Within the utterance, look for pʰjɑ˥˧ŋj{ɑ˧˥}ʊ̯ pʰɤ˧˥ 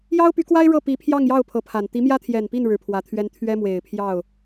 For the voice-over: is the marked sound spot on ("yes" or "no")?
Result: no